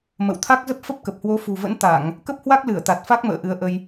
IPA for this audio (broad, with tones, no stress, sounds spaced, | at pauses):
m ə̰˧˨ w t̪ʰ a˦˥ k̚ z ə˦˥ p̚ f ə˦˥ p̚ k ə˨˩ p̚ h w o˨˦ f ṳ˨˩ v ə̰˧˥ n t̪ a˧˩˨ ŋ | k ə˦˥ p̚ h w a˦˥ k̚ l ɨ˧˩ ə̯ t̪ a˨˩ t̚ f a˦˥ k̚ m ə̰ː˧˨ ʔ ɨ˨˦ ə̯ ʔ ə˧ j